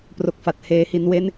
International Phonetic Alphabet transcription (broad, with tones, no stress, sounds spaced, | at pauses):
p r o˨˩ k̚ f a˨˩ t̚ h eː˩˦ h i˩˦ n w e˦˥ n